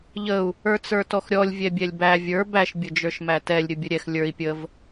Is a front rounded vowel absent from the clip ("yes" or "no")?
yes